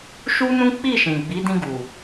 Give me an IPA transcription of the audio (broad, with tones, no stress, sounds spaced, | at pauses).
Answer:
ʃ u˦ n ũ˦ k͡p i˦˨ ʃ ĩ˨ ɡ͡b i˨˦ d ĩ˧ ɡ u˨